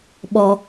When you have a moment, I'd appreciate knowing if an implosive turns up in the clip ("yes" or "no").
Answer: yes